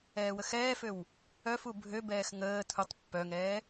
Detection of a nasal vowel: absent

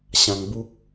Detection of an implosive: absent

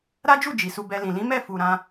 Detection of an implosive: absent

